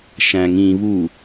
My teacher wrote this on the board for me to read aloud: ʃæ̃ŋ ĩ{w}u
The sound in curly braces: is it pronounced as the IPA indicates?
no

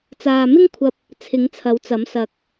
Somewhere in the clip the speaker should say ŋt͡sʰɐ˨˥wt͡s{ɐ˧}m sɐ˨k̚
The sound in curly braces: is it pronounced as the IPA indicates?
no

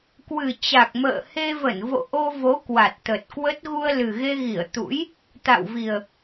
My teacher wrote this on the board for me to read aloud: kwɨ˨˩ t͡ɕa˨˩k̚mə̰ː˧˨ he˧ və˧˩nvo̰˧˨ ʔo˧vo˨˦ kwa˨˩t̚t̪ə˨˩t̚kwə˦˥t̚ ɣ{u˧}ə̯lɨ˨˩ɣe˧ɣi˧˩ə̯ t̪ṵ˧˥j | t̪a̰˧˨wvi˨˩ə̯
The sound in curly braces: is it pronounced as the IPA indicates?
yes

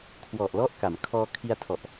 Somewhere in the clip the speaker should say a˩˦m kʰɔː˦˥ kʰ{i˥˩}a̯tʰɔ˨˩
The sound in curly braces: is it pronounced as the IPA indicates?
no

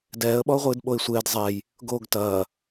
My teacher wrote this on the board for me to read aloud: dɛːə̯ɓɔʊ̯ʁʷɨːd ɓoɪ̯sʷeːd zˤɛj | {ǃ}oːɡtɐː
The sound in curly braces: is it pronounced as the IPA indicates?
no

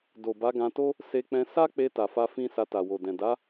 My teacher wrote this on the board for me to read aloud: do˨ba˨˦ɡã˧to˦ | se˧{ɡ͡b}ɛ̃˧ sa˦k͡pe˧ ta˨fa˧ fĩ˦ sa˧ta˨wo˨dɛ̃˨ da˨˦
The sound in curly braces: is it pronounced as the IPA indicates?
no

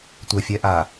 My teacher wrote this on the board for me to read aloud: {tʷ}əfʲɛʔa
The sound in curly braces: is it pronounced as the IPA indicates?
yes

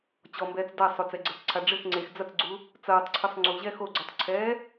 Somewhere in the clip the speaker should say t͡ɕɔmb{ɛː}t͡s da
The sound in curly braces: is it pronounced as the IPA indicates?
yes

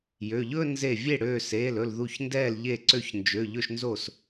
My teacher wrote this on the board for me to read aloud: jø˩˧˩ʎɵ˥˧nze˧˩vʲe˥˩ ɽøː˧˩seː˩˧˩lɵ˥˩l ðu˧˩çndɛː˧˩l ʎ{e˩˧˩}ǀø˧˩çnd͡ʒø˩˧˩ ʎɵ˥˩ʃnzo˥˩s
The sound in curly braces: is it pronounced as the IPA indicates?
no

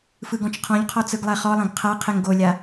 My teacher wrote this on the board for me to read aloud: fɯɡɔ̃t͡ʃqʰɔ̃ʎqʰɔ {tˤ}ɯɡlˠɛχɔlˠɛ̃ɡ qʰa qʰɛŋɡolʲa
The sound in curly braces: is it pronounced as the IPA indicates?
no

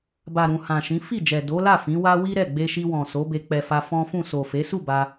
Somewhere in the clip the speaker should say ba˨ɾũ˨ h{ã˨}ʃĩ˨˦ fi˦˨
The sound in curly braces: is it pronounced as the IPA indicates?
yes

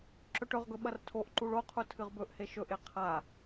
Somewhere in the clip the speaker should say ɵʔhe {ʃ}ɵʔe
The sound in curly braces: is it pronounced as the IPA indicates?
yes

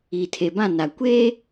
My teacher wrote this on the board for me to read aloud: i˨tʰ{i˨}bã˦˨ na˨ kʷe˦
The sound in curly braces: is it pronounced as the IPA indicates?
no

